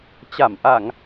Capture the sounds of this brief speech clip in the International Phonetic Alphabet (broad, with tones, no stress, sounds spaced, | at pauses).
t͡ɕ a˧˩ m ʔ a˧˩˨ ŋ